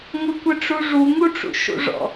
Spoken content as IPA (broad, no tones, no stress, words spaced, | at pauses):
ŋʷɘkʷɘʈ͡ʂuʐu ŋuʈ͡ʂṵʃṵʐɔ̰